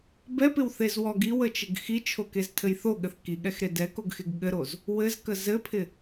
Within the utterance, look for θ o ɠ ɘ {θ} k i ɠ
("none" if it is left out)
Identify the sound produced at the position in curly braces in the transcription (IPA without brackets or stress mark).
θ